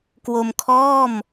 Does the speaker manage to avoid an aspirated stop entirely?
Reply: no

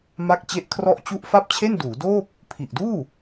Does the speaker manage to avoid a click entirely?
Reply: yes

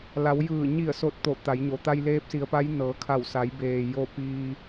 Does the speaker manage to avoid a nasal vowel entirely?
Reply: yes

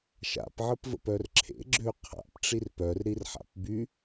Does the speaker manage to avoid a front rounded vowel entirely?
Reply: no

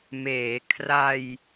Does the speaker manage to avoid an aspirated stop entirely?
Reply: no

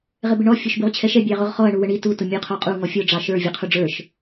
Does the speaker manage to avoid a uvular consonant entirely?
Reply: no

